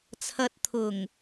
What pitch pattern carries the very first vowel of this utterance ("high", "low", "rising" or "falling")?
low